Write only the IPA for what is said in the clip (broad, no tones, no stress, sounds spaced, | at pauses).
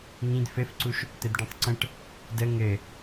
ŋ ĩ d f ɘ f ǀ u ʃ | t̪ ɘ d ɖ ĩ tˤ ǀ ə̃ ʈ | d ə ŋ ɘ